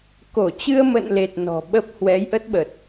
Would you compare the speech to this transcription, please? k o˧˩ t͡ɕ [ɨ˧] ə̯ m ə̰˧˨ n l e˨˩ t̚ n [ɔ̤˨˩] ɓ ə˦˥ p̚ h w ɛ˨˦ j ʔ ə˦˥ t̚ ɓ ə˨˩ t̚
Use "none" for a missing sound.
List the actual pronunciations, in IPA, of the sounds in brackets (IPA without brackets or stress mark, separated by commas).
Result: ɨ˧, ɔ̤˨˩